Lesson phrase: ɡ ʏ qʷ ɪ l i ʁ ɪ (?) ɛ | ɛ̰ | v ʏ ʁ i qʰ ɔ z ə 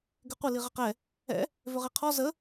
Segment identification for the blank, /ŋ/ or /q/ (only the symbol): q